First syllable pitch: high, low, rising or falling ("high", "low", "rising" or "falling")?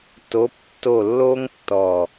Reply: rising